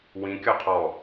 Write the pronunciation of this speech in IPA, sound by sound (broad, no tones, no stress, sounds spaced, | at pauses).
w ĩ kʲ ɔ qʰ ɔ